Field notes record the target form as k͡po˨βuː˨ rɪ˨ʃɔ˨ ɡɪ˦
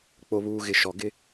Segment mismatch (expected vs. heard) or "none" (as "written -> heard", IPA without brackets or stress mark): r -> ɣ